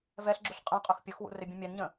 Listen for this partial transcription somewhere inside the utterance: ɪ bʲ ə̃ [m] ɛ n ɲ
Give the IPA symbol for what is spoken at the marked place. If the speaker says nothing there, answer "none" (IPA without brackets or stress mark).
mʲ